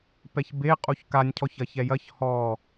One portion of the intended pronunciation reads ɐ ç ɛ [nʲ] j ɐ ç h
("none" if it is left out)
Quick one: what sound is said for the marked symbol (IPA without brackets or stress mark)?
none